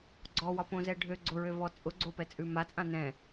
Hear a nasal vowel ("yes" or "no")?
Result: yes